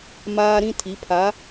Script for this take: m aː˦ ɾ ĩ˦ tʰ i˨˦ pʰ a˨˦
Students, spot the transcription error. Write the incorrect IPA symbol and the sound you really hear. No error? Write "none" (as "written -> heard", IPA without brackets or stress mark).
none